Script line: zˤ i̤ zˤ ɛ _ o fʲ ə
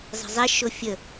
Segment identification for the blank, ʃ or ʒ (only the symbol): ʃ